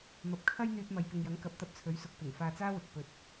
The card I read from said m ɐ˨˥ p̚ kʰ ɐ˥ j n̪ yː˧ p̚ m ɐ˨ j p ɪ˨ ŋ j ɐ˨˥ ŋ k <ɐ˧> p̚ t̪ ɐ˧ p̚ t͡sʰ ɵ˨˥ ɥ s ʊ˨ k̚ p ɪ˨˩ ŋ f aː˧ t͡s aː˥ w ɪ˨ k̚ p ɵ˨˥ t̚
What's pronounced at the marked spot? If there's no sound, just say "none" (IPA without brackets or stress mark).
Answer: ɐ˨˥